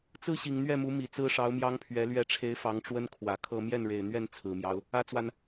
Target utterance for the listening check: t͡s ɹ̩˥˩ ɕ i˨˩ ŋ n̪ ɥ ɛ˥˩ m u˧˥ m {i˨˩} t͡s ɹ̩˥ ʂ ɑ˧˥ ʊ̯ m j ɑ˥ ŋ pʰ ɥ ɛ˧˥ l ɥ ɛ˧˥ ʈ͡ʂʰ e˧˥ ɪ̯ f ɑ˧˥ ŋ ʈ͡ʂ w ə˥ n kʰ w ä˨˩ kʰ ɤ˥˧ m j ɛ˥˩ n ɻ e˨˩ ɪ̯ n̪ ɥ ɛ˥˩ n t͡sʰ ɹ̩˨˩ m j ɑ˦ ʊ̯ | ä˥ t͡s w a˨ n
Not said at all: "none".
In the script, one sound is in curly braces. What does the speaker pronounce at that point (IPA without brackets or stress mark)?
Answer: i˨˩